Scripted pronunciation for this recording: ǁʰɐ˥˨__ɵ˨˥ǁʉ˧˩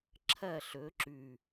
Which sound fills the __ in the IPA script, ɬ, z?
ɬ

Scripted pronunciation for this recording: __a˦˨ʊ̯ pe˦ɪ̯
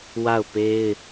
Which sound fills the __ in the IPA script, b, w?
w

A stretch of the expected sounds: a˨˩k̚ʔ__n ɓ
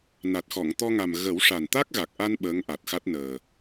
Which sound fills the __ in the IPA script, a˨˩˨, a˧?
a˧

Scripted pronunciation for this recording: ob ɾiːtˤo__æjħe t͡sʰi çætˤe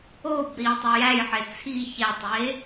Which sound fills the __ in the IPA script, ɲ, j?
j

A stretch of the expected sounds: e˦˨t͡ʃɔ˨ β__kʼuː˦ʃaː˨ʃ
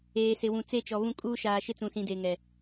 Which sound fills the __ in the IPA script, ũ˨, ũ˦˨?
ũ˦˨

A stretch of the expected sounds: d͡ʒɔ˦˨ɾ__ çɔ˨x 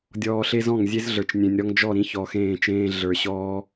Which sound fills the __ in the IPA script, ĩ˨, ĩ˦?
ĩ˦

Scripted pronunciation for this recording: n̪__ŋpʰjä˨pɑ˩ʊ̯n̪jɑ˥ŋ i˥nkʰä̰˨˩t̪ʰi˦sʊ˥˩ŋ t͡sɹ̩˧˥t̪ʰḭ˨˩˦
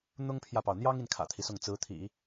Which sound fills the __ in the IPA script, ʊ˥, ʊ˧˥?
ʊ˥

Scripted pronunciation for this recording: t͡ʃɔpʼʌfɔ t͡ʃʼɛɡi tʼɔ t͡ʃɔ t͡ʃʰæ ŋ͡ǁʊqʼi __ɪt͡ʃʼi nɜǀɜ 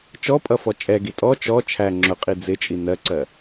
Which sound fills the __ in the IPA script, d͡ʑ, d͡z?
d͡z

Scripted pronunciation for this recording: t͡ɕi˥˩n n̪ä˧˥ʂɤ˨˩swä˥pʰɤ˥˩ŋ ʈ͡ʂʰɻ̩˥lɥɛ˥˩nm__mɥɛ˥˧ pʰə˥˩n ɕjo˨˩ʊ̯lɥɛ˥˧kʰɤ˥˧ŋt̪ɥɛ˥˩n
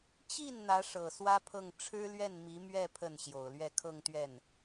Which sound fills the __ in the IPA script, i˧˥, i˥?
i˧˥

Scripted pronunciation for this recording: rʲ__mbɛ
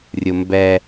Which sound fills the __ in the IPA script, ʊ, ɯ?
ʊ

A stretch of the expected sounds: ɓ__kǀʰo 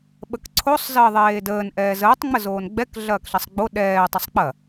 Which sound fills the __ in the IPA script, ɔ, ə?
ə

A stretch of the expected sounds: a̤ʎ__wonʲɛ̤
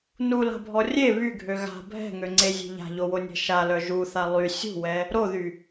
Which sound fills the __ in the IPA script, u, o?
o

